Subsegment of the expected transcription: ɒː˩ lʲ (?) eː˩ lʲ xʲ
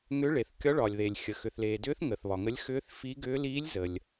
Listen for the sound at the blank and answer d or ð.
ð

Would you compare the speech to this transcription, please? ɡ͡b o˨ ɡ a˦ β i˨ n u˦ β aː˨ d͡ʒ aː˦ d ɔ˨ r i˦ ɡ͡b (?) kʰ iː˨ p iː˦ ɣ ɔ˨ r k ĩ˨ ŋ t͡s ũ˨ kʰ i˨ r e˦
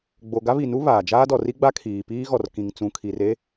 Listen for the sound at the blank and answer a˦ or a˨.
a˦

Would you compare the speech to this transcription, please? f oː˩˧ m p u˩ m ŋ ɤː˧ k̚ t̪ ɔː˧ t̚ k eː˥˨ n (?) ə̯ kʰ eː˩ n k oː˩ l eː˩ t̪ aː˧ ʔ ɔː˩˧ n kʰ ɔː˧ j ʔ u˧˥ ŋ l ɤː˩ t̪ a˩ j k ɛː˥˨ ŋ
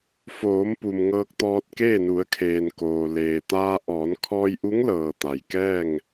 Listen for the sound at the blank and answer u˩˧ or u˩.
u˩˧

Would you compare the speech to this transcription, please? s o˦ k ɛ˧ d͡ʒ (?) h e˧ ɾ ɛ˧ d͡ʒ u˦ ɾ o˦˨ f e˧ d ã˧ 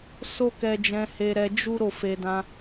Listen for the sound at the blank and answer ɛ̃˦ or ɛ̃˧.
ɛ̃˧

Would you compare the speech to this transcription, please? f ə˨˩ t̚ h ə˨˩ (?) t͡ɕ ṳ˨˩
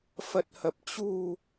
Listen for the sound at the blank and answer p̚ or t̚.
p̚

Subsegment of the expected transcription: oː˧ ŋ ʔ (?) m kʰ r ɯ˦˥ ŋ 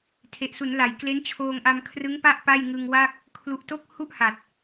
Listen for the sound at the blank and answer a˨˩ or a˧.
a˧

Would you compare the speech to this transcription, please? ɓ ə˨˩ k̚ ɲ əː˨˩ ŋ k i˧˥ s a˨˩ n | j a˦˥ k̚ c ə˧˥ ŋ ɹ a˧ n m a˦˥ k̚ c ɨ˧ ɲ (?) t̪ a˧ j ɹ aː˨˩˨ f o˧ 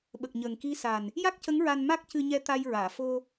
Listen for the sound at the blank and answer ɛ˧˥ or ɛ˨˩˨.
ɛ˧˥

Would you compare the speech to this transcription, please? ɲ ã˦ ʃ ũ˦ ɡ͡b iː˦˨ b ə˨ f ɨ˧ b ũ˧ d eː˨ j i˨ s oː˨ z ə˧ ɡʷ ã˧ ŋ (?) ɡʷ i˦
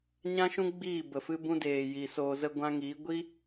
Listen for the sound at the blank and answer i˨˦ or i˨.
i˨˦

